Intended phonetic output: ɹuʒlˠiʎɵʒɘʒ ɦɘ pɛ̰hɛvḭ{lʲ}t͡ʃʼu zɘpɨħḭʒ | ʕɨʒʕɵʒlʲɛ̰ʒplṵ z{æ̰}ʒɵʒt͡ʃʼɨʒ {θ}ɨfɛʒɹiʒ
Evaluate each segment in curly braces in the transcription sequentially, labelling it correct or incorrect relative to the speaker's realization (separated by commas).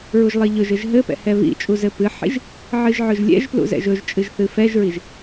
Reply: incorrect, incorrect, correct